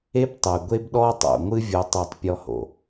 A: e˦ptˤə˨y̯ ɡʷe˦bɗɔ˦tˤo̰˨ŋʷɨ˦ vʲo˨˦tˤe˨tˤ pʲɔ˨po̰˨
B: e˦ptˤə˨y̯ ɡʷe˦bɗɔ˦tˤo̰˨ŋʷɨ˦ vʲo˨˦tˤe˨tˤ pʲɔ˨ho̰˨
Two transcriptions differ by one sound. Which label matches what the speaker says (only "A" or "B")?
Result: B